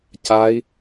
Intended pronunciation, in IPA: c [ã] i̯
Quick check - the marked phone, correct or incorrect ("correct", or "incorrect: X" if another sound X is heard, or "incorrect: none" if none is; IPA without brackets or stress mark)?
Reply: incorrect: a